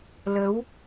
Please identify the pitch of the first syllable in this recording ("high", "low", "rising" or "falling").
rising